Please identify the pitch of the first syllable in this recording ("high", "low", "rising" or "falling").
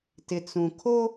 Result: low